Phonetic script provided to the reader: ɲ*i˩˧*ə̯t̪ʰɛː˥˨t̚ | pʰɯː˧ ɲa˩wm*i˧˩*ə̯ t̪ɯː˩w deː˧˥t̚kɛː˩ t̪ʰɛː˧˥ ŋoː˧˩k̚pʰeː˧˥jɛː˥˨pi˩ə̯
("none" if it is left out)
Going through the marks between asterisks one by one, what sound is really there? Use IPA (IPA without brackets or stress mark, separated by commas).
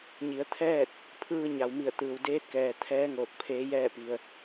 i˩˧, i˧˩